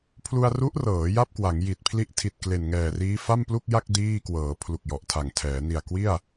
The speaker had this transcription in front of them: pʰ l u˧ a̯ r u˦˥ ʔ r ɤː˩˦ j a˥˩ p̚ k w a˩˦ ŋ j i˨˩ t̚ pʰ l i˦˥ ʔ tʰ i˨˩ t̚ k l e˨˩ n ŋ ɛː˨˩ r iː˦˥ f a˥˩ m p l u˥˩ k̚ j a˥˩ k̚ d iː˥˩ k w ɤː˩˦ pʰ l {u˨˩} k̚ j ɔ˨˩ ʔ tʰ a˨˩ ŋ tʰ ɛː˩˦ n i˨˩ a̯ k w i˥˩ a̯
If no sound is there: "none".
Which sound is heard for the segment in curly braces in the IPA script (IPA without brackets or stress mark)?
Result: u˨˩